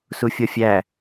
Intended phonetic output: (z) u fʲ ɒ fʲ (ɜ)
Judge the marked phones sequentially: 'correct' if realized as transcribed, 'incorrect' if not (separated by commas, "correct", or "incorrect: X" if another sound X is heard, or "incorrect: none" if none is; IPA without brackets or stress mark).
incorrect: s, incorrect: æ